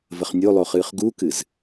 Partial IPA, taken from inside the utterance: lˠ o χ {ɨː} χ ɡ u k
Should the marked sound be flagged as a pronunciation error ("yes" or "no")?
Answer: no